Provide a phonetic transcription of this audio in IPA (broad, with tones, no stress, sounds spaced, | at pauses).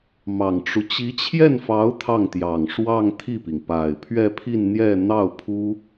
m ɑ˨˩ ŋ ʈ͡ʂ u˦ t͡ɕ i˧˥ t͡ɕʰ j ɛ˥˩ n f ɑ˧˥ ʊ̯ t̪ʰ ɑ˥˩ ŋ t̪ j ɑ˨˩ ŋ ʂ w ɑ˥˧ ŋ t̪ʰ i˥˩ p i˩ ŋ p a˨˩ ɪ̯ pʰ ɥ ɛ˥˧ pʰ i˥˧ n n̪ j ɛ˥˧ n̪ ɑ˥˩ ʊ̯ pʰ u˥